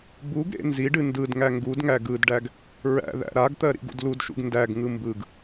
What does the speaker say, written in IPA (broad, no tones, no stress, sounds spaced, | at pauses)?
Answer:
b u ɡ ɾ ḛ n z i ɖ ɨ n d ɯ d ŋ æ ŋ ɡ u d ŋ æ ɡ ɯ d ɖ æ ɡ | ɹ æ̰ ð æ̰ ɾ a ɡ t̪ ɜ ɾ ḭ ɡ ṵ d l u d ʃ ṵ ɡ n d æ ɡ ŋ ɯ m b ɯ ɡ